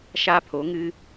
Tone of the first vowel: high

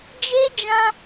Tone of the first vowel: high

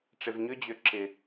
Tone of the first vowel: low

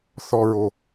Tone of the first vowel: high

